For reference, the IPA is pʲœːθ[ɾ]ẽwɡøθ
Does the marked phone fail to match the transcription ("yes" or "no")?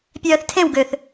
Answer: yes